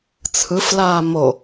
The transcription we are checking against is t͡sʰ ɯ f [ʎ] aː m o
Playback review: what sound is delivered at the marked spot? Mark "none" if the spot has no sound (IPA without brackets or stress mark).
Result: l